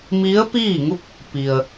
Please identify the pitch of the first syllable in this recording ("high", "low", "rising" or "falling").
rising